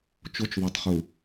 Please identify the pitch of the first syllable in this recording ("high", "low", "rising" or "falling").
high